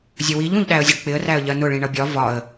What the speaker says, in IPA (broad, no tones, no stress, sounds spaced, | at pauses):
zʲ ə w i ʎ ũ ʎ ɗ æ ə̯ zʲ ə ɖ k͡p ɪ ə̯ r æ ə̯ ʎ ɜ n ʊ ɭ ĩ ɳ ʌ bʲ ɒ v ɒ ə̯